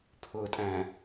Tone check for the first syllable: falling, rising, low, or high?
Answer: low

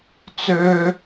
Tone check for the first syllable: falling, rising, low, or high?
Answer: high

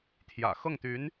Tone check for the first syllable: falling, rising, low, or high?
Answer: low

